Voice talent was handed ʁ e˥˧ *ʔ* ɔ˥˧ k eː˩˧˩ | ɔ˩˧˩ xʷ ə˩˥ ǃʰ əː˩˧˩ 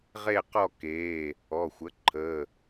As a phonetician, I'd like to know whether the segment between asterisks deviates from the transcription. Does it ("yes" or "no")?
yes